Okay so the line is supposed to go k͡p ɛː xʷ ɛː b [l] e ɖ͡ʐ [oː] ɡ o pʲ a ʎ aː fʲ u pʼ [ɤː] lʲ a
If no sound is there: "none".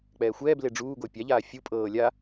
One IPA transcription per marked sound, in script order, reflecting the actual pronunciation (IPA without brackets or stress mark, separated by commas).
l, uː, ɤː